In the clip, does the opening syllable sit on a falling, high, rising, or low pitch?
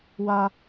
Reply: high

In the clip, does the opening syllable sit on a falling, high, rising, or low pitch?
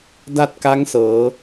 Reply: falling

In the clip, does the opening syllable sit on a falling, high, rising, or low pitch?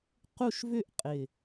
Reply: falling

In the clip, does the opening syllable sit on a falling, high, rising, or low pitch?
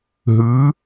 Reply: rising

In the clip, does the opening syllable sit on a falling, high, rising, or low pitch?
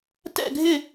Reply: falling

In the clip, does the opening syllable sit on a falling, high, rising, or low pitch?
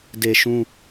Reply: low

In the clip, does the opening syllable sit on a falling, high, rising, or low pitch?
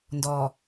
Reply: low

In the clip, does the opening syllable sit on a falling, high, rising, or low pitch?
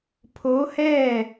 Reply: rising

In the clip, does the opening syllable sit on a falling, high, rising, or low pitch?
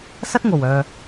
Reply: high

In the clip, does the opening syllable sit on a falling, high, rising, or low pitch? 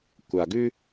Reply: low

